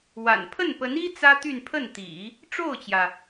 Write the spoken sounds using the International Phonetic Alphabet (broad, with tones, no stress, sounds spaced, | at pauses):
w a̰˨˩ n pʰ ə˥˩ n p ə˧˥ n i˥ t͡s ä˥ t̪ y˥˧ n pʰ ə˥˩ n t̪ ḭ˨˩˦ | ʈ͡ʂ o˥˩ ʊ̯ t͡ɕ j ä˩